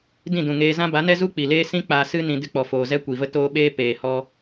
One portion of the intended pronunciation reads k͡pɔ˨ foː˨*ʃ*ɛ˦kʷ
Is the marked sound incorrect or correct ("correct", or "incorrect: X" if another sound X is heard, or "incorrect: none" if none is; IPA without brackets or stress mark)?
incorrect: z